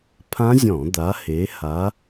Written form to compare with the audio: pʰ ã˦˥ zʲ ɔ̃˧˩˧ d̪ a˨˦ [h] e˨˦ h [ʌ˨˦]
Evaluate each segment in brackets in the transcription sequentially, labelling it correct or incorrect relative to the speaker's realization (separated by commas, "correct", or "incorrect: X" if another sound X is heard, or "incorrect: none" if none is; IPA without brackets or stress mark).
correct, incorrect: a˨˦